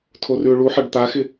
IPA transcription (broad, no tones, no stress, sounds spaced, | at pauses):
tʰ o r ʉ ʊ̯ ɭ u ħ ɑ ɖ t̪ a x ɪ